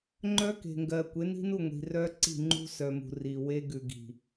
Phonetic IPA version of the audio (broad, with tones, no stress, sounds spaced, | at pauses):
ŋ͡ǃ œ˦ k e̤˨ ŋ ɡ ɜ˨ kʷ e˨˦ n i̤˦ n u˦˨ ŋʷ i̤˨ r œ˦ ǀ i̤˦˨ ŋ͡ǃ ṳ˦ s œ˨ m ṳ˨ r i˨ w e˦ ɡ ʉ˨ ɡ i̤˨